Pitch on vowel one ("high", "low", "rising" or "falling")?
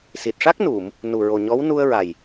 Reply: low